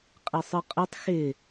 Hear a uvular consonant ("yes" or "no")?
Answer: yes